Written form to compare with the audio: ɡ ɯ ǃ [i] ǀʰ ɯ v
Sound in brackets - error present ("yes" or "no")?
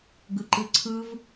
yes